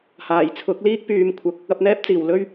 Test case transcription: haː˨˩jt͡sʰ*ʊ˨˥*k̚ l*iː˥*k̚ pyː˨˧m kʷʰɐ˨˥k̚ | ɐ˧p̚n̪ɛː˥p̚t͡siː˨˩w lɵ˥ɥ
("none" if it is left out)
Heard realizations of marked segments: ʊ˨˥, iː˥

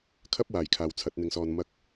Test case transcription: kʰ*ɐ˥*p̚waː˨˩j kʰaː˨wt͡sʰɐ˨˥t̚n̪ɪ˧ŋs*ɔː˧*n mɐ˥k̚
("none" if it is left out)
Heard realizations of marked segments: ɐ˥, ɔː˧

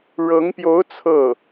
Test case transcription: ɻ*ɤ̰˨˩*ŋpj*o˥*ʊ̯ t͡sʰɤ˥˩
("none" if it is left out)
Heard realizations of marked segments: ɤ˧˥, o˧˥

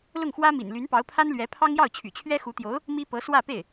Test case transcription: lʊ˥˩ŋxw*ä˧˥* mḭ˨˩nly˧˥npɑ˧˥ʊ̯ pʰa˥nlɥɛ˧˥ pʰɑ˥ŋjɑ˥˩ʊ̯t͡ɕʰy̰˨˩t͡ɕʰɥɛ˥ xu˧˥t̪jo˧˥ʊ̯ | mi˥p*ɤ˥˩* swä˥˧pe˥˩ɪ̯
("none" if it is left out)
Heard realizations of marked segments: ä˥, ɤ˧˥

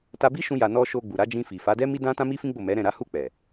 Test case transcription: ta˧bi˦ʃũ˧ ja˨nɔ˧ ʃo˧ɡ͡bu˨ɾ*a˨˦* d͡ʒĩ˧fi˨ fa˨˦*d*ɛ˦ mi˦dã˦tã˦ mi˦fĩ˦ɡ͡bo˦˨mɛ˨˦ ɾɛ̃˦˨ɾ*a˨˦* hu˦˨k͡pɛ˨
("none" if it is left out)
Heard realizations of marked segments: a˨˦, d, a˨˦

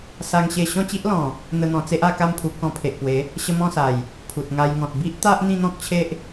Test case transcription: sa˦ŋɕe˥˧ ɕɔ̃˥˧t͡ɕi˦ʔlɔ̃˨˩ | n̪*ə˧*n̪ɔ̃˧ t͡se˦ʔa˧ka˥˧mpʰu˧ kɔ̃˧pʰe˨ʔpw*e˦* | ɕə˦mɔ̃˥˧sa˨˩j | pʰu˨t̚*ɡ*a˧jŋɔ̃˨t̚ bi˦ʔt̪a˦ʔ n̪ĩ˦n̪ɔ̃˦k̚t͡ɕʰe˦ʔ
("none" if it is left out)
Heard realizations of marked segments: ə˦, e˨˦, ŋ

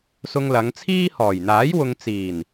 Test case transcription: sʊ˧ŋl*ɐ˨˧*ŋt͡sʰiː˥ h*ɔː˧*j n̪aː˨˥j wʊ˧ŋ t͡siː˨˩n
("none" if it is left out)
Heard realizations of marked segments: ɐ˨˧, ɔː˨˩

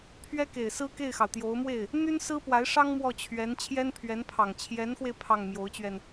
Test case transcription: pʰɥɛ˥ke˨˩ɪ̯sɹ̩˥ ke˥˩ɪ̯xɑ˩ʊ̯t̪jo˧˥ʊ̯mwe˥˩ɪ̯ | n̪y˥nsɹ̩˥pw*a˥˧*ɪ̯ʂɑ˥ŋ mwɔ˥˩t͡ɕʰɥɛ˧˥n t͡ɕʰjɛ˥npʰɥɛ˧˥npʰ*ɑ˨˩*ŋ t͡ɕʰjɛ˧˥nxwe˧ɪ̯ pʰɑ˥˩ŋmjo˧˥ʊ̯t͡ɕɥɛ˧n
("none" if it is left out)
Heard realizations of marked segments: a˧˥, ɑ˨˩

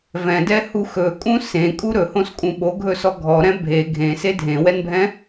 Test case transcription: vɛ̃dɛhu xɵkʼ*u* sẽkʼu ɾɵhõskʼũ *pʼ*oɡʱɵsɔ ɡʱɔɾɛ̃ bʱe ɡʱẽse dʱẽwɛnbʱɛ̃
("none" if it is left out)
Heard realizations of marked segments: ũ, ɓ

